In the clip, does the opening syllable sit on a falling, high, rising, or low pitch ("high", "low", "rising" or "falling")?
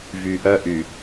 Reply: low